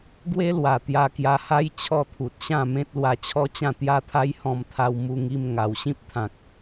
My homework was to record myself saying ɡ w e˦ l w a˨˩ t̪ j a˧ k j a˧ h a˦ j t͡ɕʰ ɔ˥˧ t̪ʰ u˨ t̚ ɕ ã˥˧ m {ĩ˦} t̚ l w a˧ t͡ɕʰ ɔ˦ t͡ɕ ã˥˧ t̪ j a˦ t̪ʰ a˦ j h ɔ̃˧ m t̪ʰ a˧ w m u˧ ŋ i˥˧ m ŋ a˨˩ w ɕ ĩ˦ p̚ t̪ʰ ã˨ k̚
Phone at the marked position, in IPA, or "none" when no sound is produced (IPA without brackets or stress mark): ẽ˦